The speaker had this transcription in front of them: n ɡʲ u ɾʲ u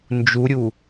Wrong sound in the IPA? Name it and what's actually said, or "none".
ɡʲ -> d͡ʒ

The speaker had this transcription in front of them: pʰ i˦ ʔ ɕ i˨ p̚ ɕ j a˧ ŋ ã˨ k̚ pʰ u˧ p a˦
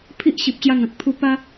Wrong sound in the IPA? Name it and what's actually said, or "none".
none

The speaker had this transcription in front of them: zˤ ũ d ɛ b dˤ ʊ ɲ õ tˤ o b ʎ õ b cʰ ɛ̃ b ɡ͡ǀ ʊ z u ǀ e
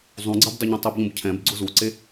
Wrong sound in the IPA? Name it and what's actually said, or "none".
d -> ɡ͡ǀ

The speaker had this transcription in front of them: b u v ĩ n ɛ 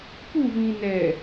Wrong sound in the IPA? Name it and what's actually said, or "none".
b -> p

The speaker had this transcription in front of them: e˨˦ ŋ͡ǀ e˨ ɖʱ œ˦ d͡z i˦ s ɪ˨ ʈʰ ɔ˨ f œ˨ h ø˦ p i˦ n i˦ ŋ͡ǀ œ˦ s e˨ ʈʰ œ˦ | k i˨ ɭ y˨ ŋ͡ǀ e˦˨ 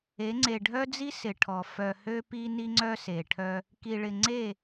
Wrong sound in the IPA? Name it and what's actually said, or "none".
y˨ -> ɪ˨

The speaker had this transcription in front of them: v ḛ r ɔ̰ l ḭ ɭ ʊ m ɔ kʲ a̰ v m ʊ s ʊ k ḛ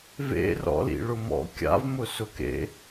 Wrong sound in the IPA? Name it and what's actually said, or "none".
ɔ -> ɔ̰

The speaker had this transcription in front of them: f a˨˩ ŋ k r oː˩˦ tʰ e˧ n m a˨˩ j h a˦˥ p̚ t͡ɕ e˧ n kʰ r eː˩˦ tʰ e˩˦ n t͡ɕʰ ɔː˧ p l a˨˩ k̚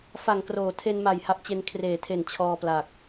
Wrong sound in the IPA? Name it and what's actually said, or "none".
none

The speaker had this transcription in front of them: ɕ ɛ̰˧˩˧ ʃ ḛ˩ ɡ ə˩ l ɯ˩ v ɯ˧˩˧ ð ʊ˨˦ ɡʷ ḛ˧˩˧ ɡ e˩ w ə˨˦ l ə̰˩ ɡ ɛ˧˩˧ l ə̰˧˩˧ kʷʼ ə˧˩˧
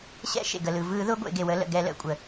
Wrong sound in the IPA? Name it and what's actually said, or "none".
none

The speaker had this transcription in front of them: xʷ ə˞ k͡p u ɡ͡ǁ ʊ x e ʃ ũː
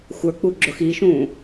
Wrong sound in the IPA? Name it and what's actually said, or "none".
e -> i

